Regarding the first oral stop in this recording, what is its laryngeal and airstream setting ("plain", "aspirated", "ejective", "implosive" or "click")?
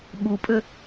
implosive